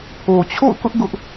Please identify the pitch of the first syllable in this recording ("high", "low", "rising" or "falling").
low